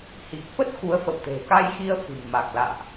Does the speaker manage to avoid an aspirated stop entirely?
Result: yes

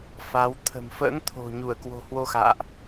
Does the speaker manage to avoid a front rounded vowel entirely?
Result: yes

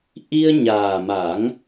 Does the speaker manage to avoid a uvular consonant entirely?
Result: yes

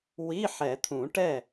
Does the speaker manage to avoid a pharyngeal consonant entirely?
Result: no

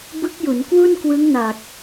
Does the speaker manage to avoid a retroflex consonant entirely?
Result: yes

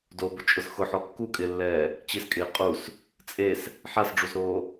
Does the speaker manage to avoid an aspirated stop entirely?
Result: yes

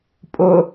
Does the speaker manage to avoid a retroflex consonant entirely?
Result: yes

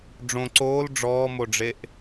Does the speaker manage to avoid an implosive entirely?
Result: yes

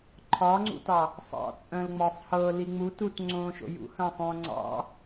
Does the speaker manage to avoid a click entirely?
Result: no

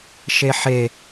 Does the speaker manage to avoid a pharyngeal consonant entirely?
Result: no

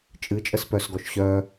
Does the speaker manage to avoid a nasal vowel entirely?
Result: yes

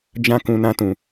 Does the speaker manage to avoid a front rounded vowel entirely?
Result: yes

